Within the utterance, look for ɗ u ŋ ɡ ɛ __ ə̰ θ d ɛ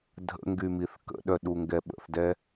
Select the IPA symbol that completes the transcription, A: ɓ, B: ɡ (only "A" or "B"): A